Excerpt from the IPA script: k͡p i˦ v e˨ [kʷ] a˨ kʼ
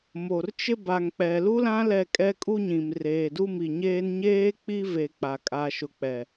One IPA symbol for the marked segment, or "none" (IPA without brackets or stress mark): k͡p